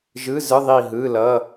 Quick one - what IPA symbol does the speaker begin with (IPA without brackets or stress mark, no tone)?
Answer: ʒ